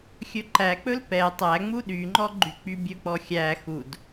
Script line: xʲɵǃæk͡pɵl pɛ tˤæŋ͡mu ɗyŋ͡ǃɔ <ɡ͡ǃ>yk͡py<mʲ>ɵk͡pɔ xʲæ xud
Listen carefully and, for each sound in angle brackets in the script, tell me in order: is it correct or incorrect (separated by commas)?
correct, incorrect